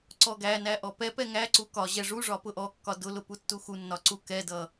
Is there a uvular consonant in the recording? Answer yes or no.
no